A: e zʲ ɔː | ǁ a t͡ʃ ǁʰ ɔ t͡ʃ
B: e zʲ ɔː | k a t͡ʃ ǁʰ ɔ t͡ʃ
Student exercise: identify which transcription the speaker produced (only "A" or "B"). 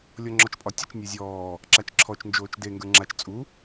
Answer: A